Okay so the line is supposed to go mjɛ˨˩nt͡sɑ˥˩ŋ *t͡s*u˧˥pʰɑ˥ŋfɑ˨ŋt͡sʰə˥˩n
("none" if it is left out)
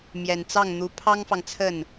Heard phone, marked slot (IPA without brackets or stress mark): n̪